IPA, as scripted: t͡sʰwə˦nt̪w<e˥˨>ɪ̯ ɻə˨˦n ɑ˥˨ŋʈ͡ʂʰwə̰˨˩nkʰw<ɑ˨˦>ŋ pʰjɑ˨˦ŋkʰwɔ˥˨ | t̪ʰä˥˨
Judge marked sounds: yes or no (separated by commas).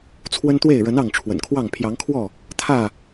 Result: yes, no